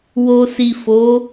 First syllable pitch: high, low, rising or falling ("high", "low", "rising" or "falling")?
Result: low